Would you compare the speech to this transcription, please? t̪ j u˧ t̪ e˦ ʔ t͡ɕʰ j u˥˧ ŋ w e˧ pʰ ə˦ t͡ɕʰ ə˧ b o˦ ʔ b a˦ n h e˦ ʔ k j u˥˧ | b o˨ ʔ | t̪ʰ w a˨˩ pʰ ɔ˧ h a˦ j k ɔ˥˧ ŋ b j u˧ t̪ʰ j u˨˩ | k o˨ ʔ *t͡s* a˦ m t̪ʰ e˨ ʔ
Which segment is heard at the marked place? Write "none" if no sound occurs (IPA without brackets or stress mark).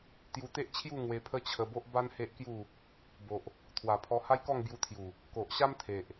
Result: ɕ